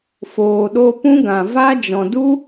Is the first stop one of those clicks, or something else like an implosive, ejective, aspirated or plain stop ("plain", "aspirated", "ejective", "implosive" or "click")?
implosive